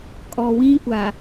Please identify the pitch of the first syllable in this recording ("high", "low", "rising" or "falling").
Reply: low